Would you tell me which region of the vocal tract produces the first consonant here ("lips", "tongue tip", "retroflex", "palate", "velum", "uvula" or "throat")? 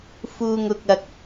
lips